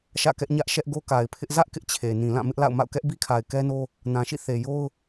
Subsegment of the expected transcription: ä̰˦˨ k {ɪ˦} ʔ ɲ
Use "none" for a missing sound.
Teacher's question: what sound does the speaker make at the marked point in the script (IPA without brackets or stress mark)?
ɛ˦